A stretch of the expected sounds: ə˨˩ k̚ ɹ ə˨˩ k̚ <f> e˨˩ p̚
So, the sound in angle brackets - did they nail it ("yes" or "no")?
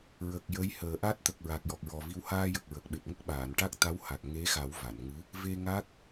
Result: no